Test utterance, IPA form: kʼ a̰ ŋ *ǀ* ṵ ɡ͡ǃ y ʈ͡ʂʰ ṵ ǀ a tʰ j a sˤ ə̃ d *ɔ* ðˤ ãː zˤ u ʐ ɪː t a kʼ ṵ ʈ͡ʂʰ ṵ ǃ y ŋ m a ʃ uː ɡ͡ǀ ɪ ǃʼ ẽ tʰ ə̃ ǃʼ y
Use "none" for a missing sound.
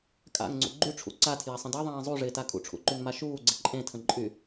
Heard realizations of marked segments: ŋ͡ǀ, ɑ

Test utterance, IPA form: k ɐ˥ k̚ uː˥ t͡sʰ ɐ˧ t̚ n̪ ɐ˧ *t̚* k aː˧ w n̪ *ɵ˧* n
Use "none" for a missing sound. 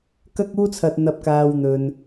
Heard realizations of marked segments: p̚, ɵ˧

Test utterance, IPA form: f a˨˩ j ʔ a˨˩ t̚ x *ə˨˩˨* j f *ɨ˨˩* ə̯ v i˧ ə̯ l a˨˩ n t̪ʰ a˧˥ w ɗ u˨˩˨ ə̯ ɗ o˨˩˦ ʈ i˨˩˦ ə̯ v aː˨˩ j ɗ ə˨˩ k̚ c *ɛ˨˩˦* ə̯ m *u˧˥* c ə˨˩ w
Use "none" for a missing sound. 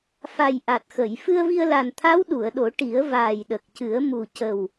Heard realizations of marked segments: ə˨˩˨, ɨ˧, ɨ˨˩˦, u˨˩

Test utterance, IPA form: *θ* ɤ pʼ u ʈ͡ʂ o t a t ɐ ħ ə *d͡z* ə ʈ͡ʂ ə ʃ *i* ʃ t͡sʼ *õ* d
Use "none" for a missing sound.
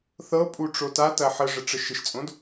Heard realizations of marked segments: θ, ʐ, ɪ, õ

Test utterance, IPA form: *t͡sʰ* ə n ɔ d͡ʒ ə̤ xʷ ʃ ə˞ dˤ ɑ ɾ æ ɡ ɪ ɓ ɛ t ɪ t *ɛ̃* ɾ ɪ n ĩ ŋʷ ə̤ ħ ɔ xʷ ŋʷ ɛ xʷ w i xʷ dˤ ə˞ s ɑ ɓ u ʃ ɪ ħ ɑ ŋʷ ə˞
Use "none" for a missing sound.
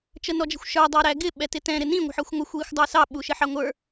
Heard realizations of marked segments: t͡ʃ, ɛ̃

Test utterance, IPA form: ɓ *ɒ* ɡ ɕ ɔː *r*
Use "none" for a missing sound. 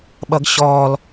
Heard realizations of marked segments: ʌ, l

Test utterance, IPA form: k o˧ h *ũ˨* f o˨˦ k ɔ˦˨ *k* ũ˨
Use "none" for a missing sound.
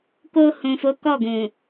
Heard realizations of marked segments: ũ˨, ɡ

